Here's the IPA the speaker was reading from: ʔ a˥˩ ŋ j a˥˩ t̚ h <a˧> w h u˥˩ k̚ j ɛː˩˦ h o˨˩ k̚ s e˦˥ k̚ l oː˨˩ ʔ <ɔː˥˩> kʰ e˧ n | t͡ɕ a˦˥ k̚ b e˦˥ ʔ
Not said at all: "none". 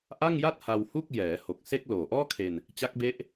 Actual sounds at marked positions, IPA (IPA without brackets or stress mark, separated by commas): a˧, ɔː˥˩